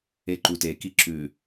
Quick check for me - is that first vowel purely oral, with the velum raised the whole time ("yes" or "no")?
yes